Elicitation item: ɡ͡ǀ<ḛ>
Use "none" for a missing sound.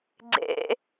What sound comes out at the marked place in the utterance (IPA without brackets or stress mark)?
ḛ